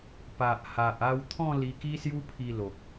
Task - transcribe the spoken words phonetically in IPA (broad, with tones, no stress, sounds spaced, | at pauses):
p a˨ ʔ h a˨ ʔ a˧ w t̪ʰ ɔ̃˥˧ l i˧ k i˦ s j u˦ pʰ i˧ l o˨ k̚